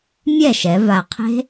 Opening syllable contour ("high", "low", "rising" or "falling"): falling